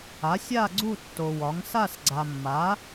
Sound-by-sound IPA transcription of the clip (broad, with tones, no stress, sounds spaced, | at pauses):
a˩˥ sʲ a˥˨ ɡ͡ǀ u˥˨ tː o˨ w ɒ˩˥ ŋ s a˥˨ s ɡ͡ǀ a˨ mː a˩˥